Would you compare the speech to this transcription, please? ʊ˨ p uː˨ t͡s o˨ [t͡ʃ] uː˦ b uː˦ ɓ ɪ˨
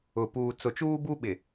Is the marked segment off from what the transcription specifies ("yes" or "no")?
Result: no